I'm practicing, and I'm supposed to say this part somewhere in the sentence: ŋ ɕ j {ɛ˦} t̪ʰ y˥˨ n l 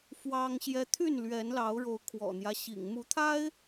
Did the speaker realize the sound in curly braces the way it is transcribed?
yes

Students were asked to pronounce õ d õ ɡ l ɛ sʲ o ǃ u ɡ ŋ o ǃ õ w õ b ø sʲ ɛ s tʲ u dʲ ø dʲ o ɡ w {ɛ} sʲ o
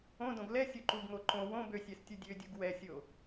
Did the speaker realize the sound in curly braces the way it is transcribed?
yes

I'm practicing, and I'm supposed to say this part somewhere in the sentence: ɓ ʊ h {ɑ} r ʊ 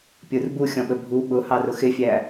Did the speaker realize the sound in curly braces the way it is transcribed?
yes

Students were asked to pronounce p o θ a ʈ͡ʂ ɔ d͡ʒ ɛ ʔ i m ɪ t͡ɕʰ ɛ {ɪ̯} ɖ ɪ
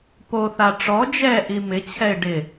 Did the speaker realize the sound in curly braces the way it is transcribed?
yes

